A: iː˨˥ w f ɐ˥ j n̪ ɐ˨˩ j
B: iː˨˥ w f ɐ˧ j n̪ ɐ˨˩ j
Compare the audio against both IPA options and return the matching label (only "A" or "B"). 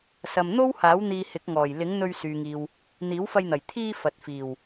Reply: B